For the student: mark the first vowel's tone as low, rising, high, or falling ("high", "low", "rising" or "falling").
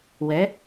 rising